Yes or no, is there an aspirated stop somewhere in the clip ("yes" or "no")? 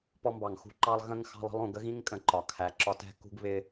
yes